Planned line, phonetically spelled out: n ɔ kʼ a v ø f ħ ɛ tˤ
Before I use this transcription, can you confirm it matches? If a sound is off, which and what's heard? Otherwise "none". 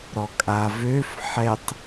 n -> ɾ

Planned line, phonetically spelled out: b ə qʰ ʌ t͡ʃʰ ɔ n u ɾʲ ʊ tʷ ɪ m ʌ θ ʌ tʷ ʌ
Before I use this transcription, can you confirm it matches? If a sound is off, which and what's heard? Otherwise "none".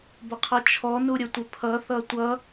m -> pʰ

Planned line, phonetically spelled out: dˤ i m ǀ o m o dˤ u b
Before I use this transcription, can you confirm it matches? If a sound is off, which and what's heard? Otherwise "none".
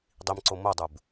none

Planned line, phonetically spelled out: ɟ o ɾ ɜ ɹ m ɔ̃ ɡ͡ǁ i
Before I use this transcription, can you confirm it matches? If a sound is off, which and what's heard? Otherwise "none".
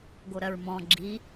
ɟ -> ɡ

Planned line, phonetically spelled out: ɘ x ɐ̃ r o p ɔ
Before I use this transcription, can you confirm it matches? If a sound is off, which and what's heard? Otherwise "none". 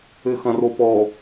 none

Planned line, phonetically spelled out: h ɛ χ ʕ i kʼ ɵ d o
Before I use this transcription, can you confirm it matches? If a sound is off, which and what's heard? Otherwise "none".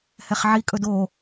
none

